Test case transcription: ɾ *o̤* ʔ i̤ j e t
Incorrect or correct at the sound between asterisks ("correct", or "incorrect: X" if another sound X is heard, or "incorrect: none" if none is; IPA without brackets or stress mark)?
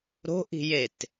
correct